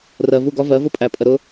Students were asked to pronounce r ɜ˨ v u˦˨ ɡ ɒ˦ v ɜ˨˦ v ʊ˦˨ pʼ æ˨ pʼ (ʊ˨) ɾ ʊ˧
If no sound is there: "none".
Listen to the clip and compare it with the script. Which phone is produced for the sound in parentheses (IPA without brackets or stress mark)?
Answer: ə˨